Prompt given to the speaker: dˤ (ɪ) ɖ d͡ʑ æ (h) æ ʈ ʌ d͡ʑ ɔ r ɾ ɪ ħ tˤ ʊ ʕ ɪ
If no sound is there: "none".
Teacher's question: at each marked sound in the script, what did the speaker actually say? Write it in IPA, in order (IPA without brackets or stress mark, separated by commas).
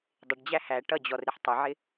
ɪ, h